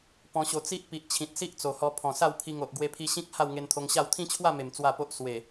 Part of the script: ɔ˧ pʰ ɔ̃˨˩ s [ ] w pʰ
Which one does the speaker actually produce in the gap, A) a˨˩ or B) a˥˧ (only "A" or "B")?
B